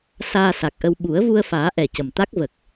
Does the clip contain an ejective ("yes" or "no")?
no